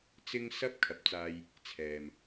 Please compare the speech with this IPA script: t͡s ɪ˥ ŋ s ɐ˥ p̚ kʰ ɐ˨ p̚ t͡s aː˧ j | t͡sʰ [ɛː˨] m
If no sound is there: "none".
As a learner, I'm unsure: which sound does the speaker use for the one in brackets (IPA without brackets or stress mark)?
ɛː˨